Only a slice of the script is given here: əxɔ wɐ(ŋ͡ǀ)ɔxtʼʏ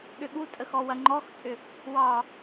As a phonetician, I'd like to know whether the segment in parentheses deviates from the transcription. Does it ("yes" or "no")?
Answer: yes